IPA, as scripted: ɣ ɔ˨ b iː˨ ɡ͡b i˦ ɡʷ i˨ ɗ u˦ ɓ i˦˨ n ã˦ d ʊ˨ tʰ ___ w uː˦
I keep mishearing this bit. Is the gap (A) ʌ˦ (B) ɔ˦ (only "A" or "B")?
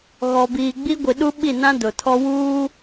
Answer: B